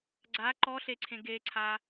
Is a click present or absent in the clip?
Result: present